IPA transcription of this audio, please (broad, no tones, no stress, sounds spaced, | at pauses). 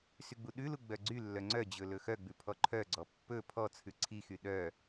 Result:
s y ɡ͡b u ɗ ʉ l u ɡ͡b œ ɡ͡ǀ y lː œ ŋ͡ǀ œ d͡ʑ ɵ l ɵ x œ ɡ͡b ʉ pʰ ɔ ǃʰ œ ɡ͡ǀ ɔ pː ɵ pʰ ɔ t͡sʰ ʉ ǀʰ i x y ɗ œ